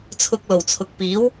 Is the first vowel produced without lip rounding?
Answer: no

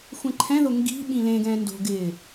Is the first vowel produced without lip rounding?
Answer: yes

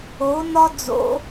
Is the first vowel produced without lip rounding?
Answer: no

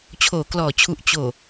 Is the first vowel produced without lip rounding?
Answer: no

